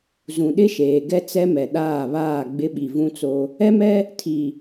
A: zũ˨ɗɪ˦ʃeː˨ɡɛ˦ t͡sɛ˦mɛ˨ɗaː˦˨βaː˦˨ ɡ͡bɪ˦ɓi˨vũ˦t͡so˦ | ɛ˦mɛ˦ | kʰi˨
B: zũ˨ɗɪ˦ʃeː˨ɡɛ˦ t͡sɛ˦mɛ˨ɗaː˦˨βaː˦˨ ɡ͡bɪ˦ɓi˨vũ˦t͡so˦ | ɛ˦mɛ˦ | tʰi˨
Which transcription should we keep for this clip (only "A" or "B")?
B